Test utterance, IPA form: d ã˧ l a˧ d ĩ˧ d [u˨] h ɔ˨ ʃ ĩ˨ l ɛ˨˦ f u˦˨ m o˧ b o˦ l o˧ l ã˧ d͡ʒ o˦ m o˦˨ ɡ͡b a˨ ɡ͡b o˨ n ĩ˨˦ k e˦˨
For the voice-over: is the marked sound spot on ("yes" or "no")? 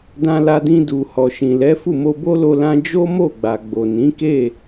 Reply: yes